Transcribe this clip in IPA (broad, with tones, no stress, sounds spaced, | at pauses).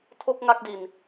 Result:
tʰ o˥˩ k̚ ŋ a˥˩ k̚ d i˧ n